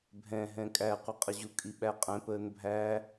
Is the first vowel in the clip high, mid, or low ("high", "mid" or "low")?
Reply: mid